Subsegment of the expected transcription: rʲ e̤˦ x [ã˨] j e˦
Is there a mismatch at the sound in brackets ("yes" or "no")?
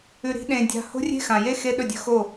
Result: no